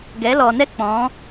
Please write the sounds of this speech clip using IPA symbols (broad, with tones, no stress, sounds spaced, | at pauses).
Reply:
ɡ ɛ˨˦ l ɔ˨ n ɛ˦ k͡p ɔ̃˨˦